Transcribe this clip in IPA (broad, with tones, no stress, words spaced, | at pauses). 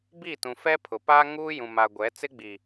bi˦˨tũ˨fɛ˦ pʰʊ˨paː˦ŋuː˦ jũ˨ ma˨ ɡʷɛ˨˦ t͡sɪ˦ɡ͡bi˨